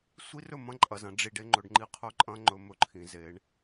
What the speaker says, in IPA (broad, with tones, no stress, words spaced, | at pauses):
sʷi˦rɵ˦˨mɐ̃˦ ǃʼɐ˨zɐ̃˦ ɖ͡ʐi˨ɖ e˦ŋ͡ǃɵ˨ɖŋ͡ǃi˦ qʰɵ˦ǃʼɐ̃˦ŋ͡ǃɵ˨ mɵ˦ǃʰĩ˨ ze˨˦ɳ